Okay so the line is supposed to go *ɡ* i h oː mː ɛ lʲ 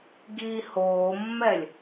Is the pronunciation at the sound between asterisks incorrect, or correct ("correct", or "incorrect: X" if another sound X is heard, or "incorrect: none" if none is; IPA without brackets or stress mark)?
correct